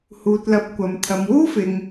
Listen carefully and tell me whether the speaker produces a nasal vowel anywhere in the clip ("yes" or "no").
no